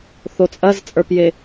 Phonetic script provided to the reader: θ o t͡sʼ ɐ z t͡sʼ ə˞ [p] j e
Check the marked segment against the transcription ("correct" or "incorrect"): correct